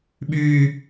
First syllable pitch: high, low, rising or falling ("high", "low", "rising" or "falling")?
high